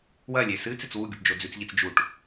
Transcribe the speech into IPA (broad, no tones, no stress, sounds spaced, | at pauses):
w ɐ lʲ e s ɨ t͡s e t͡s w u ɡʲ u ʈ d͡ʒ o d͡z ʉ t͡s ʎ i t͡s d͡ʒ u ʈ